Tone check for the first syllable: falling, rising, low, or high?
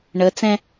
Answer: rising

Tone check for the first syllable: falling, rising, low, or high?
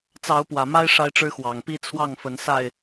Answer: rising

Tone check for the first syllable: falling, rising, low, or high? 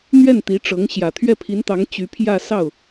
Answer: falling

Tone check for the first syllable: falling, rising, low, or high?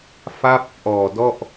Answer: falling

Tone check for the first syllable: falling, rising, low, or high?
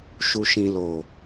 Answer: low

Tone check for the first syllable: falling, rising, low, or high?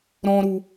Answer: high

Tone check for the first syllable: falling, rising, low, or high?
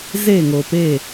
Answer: falling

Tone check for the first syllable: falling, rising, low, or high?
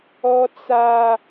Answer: high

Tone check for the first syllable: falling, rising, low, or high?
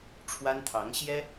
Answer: high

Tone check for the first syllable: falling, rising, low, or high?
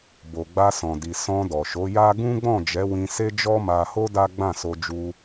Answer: low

